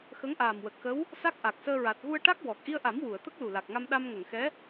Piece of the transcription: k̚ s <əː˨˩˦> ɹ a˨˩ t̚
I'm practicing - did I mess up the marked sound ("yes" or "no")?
yes